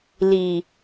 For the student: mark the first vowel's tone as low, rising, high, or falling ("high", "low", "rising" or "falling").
low